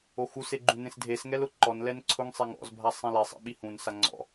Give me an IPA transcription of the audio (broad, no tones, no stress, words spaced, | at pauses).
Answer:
oxuse ɡ͡ǃũnẽsdʱesŋɛl ʊǃɔnlɛn ǀʰʊŋsˤeŋ ɔ̰zbʱa sˤĩlɛsˤḛ ɓihũnsa ŋ͡ǀɔ̰